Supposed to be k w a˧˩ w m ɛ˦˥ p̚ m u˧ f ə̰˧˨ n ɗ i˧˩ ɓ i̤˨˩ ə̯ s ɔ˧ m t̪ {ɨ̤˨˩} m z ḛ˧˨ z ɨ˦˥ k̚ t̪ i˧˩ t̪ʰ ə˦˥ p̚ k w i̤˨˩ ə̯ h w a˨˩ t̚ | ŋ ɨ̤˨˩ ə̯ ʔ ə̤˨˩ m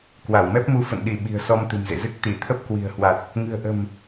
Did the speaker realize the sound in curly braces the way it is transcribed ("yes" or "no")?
yes